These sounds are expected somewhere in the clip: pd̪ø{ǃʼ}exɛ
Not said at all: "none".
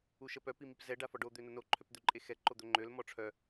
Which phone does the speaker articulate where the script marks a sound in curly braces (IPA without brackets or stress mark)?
ǃʼ